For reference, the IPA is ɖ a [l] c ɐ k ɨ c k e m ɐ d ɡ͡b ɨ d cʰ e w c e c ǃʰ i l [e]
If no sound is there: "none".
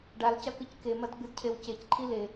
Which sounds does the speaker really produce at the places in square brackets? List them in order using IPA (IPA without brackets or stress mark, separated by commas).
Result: l, e